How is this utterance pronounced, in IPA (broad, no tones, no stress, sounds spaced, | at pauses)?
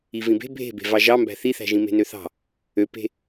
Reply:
i v ĩ b e̤ bʱ e̤ b e̤ v ɑ ʒ ɑ m b æ̤ θ i θ æ̤ ʒ ĩ m e̤ n ø θ ɑ̤ | ø p e̤